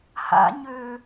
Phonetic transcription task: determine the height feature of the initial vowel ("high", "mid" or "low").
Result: low